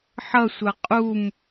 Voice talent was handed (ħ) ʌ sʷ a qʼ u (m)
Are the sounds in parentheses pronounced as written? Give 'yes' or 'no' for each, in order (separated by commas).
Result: yes, yes